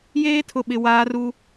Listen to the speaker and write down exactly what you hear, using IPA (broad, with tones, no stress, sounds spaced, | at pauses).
j eː˦ tʰ ʊ˨ ɓ ɪ˨ w aː˦ r u˦